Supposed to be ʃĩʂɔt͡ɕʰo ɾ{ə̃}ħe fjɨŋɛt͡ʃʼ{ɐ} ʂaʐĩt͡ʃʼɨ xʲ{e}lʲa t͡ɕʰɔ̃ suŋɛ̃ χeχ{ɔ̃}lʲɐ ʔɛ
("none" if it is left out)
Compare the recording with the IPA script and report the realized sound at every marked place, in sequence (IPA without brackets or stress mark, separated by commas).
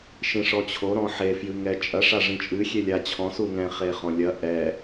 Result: ɔ̃, ɐ, e, ɔ̃